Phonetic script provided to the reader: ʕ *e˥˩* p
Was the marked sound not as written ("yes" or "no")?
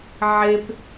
yes